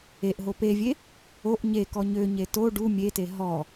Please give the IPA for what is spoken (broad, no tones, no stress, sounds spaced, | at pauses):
e ʔ ɦ o p e vʲ e | o ʔ ɲ e k ɔ ɲ ø ɲ e t o ɖ u mʲ e t e ɦ ɔ